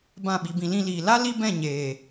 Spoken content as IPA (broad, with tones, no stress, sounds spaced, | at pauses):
b ã˦˨ ɓ i˧ b ĩ˧ l ĩ˧ l iː˨ l a˦ l i˦ b ɛ̃˦˨ ɲ eː˨